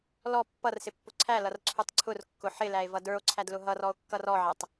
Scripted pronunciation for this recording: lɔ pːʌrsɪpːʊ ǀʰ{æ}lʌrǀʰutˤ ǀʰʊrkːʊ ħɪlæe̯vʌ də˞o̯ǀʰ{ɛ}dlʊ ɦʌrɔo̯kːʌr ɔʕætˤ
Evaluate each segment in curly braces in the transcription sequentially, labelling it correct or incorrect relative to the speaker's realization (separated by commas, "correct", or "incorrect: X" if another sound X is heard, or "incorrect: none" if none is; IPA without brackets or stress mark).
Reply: correct, incorrect: æ